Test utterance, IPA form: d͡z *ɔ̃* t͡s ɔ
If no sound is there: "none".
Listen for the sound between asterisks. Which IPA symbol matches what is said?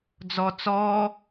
ɔ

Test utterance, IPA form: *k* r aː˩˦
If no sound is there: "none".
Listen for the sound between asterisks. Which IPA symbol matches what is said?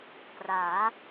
k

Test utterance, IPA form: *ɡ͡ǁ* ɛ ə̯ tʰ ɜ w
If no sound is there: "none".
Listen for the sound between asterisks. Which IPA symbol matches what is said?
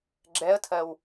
ɡ͡ǁ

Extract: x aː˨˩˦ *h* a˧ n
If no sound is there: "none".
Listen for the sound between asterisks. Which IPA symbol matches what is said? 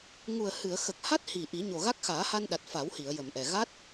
h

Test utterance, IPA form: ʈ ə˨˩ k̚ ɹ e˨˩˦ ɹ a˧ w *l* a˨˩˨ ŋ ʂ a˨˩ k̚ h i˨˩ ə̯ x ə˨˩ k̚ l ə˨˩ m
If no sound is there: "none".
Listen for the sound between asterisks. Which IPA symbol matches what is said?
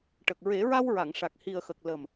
ɹ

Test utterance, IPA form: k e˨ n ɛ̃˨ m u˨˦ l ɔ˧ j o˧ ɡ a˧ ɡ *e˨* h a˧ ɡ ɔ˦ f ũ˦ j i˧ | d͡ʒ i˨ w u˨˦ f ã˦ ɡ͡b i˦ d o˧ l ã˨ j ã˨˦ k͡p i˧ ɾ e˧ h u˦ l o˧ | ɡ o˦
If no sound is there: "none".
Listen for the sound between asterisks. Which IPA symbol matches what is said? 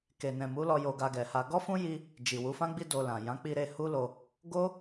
ɛ˨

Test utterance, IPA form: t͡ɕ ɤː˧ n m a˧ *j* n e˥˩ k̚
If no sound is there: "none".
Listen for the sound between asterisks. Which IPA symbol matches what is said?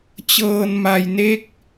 j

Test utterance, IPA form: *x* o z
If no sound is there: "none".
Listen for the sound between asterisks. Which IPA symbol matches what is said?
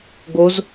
ɡ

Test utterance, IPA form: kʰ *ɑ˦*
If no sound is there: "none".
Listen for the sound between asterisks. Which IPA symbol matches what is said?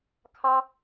ɑ˦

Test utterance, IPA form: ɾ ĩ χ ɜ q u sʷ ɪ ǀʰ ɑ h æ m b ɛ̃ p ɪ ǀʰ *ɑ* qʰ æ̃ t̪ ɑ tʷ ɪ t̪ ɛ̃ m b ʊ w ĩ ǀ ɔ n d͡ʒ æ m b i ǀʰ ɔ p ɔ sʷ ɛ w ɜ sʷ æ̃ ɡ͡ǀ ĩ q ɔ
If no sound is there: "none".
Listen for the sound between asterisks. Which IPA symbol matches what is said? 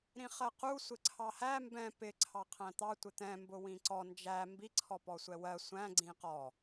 ɑ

